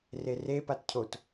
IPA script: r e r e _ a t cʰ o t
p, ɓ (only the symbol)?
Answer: p